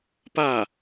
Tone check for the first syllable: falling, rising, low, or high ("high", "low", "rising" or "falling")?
falling